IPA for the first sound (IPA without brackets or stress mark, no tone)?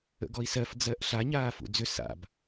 ə̰